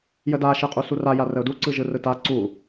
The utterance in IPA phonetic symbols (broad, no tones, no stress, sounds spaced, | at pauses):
j ə d a ʃ ɯ qʼ u s u r a j a r ə ʊ̯ d u ǀ ɯ ʒ ɯ r ɯ t a ǀ u